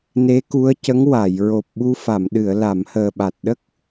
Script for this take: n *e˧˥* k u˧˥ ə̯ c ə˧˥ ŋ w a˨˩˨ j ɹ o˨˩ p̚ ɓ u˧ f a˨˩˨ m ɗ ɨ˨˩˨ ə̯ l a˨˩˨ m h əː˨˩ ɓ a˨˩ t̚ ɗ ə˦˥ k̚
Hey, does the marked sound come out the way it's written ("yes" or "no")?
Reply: yes